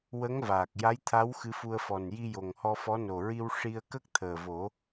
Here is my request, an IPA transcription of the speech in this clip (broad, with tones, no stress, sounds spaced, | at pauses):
w ə˧˥ ŋ v aː˨˩ k̚ j a˧˥ j t̪ʰ a˧˥ w x ɨ˧˥ f u˧ ə̯ f ɔ˨˩ n j i˧ j o˨˩ ŋ h ɔ˧ f ɔ˧˥ n o˨˩ ɹ i˧ w ʂ i˧ ə̯ k ə˦˥ k̚ t̪ʰ əː˨˩ v o˨˩˦